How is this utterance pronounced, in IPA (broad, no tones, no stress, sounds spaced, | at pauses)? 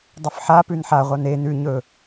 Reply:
dˤ ɵ f ħ a p ʉ n ħ a ʁʷ a n e n ʉ ɲ ɵ